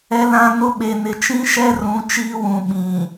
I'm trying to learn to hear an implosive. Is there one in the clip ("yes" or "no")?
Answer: yes